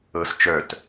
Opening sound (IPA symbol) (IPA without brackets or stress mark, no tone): ɤ